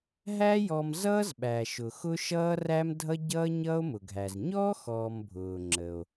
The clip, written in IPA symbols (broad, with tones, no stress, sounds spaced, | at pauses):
ɦ æ˥ j ɔ˧ m z ʌː˥ z ɓ æ˩ ʃ ʊ˩ x ʊ˥ ʃ ʌː˥ r æ˥ m dʱ ʌ˥ ɟ ʌː˥ ɲ ʌː˥ o̯ m ʊ˩ ɡʱ æ˩ z ɲ ɔ˥ x ɔː˧ m bʱ ʊː˩ ŋ͡ǁ ə˩ o̯